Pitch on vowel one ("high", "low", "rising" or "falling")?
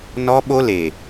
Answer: high